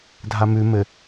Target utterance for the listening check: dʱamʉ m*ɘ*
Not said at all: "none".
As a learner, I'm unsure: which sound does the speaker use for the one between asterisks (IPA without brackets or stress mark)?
ɘ